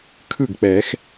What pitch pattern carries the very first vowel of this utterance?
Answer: falling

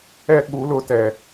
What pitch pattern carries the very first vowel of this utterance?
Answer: high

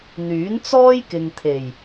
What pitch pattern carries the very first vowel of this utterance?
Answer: rising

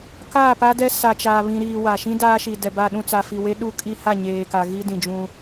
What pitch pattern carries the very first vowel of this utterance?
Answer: falling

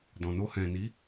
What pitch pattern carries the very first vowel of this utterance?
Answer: low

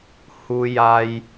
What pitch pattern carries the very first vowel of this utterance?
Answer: low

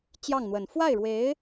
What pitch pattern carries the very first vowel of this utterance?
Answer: falling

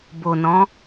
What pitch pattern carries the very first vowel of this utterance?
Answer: low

